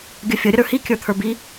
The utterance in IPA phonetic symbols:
ɡʲ ə fʲ ə ɾʲ ə ɾ ə˞ h i kʲ ə˞ t̪ʰ ə˞ b i

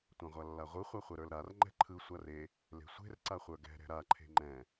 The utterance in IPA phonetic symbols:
tʷ ã ʁʷ a lː a ʁʷ ɯ χʷ a χʷ ɛ ɾ ə˞ l ɾ a r ŋ͡ǃ ɛ̤ ǃʰ ɯ sʷ a r e | l e̤ sʷ e̤ r ǀ a χʷ ə˞ ɡ ɛ̤ ɾ ɛ̤ ɾ a ǃʰ e̤ ŋ͡ǃ ɛ̃

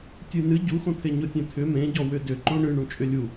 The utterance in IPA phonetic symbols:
tʲ ɨ n ɨ ɟ u x õ t̪ʰ e ɲ ʊ tʲ ẽ t̪ʰ ʏ m ẽ ɟ ɔ w ʏ d ʏ ǃ õ ɳ ɨ ɳ ũ t͡ʃʼ ʏ lʲ u

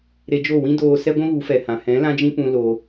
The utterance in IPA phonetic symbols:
ɾ e˧ d͡ʒ o˦˨ w ĩ˦ d oː˧ s ɛ˦ ɡʷ ũ˦ ɣ u˨˦ f ɛ˨ h ã˨ h ɛ̃˨˦ l ã˦ d͡ʒ ĩ˦ p ũ˧ l o˧

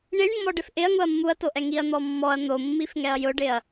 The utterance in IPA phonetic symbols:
ɳ i ɳ mː ɔ ɖ ɪ f ʔ ɪ ɐ̯ ŋ ʊ ɐ̯ mː u ɐ̯ t o ʔ ɛ ŋ i ɐ̯ n̪ ɔ mː ɔ ɐ̯ n̪ o mː i f ŋ ɛ ɐ̯ j ʊ ɖ ɪ ɐ̯

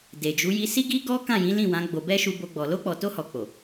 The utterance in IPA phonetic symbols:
d e˨ d͡ʒ u˨˦ j i˧ s i˦ ɡ i˦ ɡ ɔ˦ k ã˦˨ j ĩ˨˦ l ĩ˦˨ w ã˨˦ ɡ͡b o˧ b ɛ˦ ʃ u˧ b o˧ ɡ͡b ɔ˨ l o˧ k͡p ɔ˨ t o˧ h ɔ˨ k͡p o˨

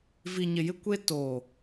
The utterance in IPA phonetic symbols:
v i˨ ɲ ɪ˨ j ɪ˦ kʷ e˦ t oː˨

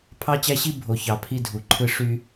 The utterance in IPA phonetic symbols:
pʰ ɑ˦ t͡ɕ æ˦ ɕ i˦ bʱ o˨ ç ɑ˨ pʰ i˦ dʱ u˨ ǃʰ ɯ˦ ʂ y˦

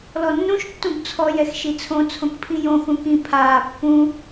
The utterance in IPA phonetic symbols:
l ɔ nː ũ ʃ tː ũ b t͡sʰ ɔ j ɛ x ʃ i t͡sʰ õ t͡sʰ õ k pʰ ĩ j õ x ũ k ĩ pʰ aː pː ũ

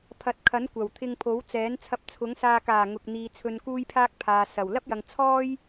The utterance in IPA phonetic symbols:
pʰ ɐ˨˥ t̚ kʰ ɐ˨˥ n kʷ ɐ˨˩ w t̪ʰ ɪ˧ ŋ pʰ o˨˥ w t͡s ɛː˨˥ n t͡sʰ ɐ˧ p̚ t͡sʰ ʊ˨˥ ŋ s aː˧ k aː˨˩ ŋ ʊ˨ k̚ n̪ iː˨ t͡sʰ ɵ˧ n k uː˥ j pʰ aː˥ k̚ pʰ aː˨ s ɐ˨˩ w l ɐ˥ p̚ j ɐ˨ ŋ t͡sʰ ɔː˥ j

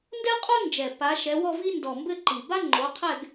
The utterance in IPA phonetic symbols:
n d ɛ˥ qʼ o˥ n d͡ʒ ɛ˨˩ p a˨˦ ʃ ɛ˨˦ w ɔ˥˧ v i˥ n d ɔ˨˩ m b ɘ˥˧ ǃ i˨˩ b a˥ ŋ͡ǃ o˨˦ qʰ ɛ˥˧ ɡ

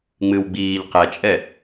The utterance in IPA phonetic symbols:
ŋ͡m ɨ w ɡ͡b iː ʎ q ɛ t͡ʃʼ ɛ

